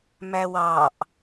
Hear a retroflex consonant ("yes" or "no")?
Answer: no